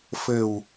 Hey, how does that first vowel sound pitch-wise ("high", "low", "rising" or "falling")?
low